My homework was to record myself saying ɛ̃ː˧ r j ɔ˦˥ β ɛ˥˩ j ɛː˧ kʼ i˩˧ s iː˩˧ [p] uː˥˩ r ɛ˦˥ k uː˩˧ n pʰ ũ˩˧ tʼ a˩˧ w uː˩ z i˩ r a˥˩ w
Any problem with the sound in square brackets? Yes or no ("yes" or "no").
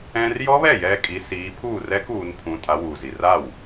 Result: yes